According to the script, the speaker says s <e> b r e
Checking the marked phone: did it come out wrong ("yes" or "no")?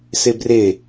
no